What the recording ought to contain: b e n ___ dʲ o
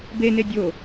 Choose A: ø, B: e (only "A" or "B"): B